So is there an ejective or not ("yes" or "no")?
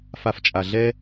yes